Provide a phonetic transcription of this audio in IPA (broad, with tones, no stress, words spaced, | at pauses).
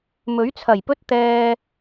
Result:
mɵ˨˥ɥt͡sʰɐ˨˩jpɵ˥t̚ t̪ɛː˧